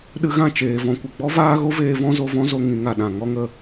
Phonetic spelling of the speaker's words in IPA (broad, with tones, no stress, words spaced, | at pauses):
ɗɨ˧ɣã˦˨ t͡ʃeː˨vɔ̃˧kʷə˨ ɡ͡bɔ˦vaː˦ɣo˦veː˧ vɔ̃˦zo˧vɔ̃˦zo˧ ŋĩ˧ŋ a˨ɗã˨ ŋɔ˦ŋə˧